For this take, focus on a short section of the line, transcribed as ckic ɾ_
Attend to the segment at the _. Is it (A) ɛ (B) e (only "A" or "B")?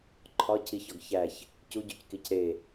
B